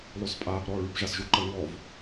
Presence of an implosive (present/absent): absent